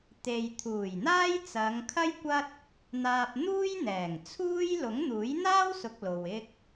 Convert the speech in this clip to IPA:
t̪e˨jt̪ʰuː˨˩jn̪aː˥j t͡sɐ˨˧ŋ kʰɐ˥jkʷɐ˥t̚ | n̪aː˧p̚n̪uː˥jn̪ɛː˨˩ŋt͡sʰuː˥j lʊ˨˥ŋn̪uː˨˥jn̪aː˥wsʊ˨k̚ lo˨wɪ˥k̚

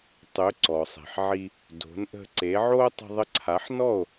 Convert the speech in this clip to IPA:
tˤø˩˥ ǀɔ˩sˤe̤˩ħʕi˧ | do̤˩˥n ʔə̤˧ǀe˩˥ʕo˥ tˤə̤˧ðˤə˧ǀʰa˩˥ħnɔ˥˩o̯

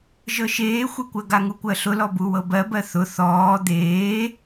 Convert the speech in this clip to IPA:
ʒɤʃeːxʷekʷɜ ɡaŋukʷɜɬʊ lɔbuwɤbɜ bɜθʊ θɔː d̪eː

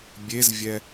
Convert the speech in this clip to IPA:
bʲezvʲɛ

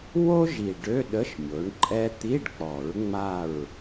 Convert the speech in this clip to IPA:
wo˥ ʒi˨˩ ɖø˧˥˧ɗə˧˥˧ʃ mʲo˩˥ɳǃʼɛ˥ t̪i˧˥˧ɖk͡pɔ˨˩˦ɹ ŋ͡ma˥˨ɹ

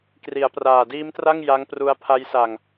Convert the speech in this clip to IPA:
kri˩˦a̯praː˨˩diː˦˥mtra˥˩ŋ ja˦˥ŋpru˦˥a̯ pʰa˦˥jsa˧ŋ

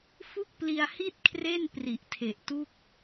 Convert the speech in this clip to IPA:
fu˥˩k̚pli˧a̯hi˥˩t̚kʰre˥˩n pri˨˩ʔtʰe˨˩ʔtu˥˩k̚

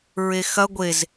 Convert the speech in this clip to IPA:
ɹexɐ ɡʷez

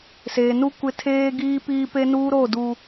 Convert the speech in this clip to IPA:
seː˨nu˦ kʷɪ˦tʰeː˦ɡiː˦piː˦ pe˦nuː˦ɾo˦˨duː˨

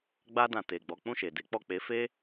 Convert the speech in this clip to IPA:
ɡ͡ba˧dã˨ te˨ɡ͡bɔ˨˦ k͡pũ˦˨ʃe˨de˨˦k͡pɔ˦˨ k͡pe˨˦fe˦

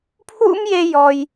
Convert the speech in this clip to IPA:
pʰwṵ˥m je˥ jɔ˦j

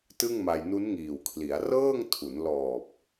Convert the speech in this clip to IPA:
tɯ˥˩ŋma˧j nu˦˥nŋiː˨˩wkʰli˩˦a̯ rɤː˥˩ŋtʰu˩˦n lɔː˨˩p̚

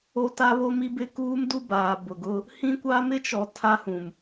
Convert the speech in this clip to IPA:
o˦ta˦βo˦m i˦bɪ˦kuː˦mdu˦ baː˨ bʊ˨ɡʊ˦ | hĩ˦kʷa˦ mɪ˦t͡ʃɔ˨ tʰa˦hũ˨m

